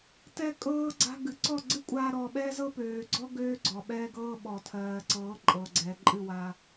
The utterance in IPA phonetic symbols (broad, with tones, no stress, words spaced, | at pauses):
tɛ˦kʼɤː˦ ɡ͡ǀa̤˦ ɡɨ˨ǀɔ˦˨ɡ͡ǀɨ˦ kʷʼaː˦ɾɔː˧ ɓɛː˦zɤ˦pøː˨ɡ͡ǀɔ˦ ɡøː˦ɡ͡ǀɔ˨ ɓɛː˦ɡɤː˦ɓɔ˨ tʰɜː˨ǀɤː˨˦ ǃʼɤ˨ɡ͡ǀɛ˨ ǃʼɨ˦˨wa˧